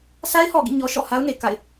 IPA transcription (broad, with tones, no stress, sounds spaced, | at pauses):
sʰ a˦ ɪ̯ h ɔ˨ ɡ ḭ˦˨ ɲ ɔ˦ ʃ ɔ̰˦˨ h a˦ ʊ̯ n e˨ k a̰˦˨ ɪ̯